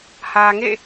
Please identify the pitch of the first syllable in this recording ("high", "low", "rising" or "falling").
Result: low